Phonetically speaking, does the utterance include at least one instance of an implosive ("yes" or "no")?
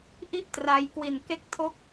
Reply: no